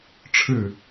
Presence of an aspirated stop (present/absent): present